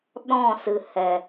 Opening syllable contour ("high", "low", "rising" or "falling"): falling